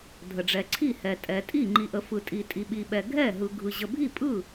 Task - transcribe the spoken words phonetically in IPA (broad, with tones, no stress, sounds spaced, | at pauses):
dʱ ə˨ ɖ͡ʐ ɛ˨ ǀʰ i˥˩ h ɛ˨ tʼ ɛ˨ tʼ i˥˩ ŋ͡ǃ i˨ ʔ ə˨ f ɯ˨ tʼ i˨ tʼ i˨ ɓ i˨ ɓ ɛ˨ ɡʱ ɛ˥˩ ɦ ɯ˨ ɡʱ ɯ˨ ʑ ə˨ bʱ i˥˩ pʼ ɯ˥˩